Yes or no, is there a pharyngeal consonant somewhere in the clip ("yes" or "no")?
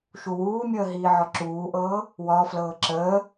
yes